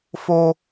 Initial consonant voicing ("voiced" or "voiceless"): voiceless